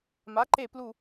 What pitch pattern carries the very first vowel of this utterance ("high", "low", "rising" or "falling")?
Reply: rising